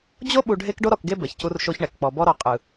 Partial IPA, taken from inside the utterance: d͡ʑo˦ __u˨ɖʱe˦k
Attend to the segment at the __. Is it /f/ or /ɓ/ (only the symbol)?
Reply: ɓ